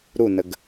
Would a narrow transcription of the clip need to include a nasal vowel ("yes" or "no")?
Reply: no